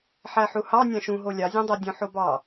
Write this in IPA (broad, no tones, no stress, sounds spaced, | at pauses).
ħ æ ħ u h ɑ nʲ ɑ̃ ʃ ũ ɦ o lʲ ɑ zʲ õ dˤ æ dʲ õ ħ o b ɑ